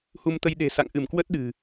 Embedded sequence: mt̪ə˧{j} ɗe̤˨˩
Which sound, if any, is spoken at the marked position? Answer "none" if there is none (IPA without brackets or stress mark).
j